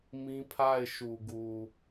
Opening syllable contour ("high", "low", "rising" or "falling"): high